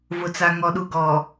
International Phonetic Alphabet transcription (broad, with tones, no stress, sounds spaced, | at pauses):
v ʊ˨ t͡s a˨ ŋ ɔ˨ ɗ u˨ ɡ ɔ˨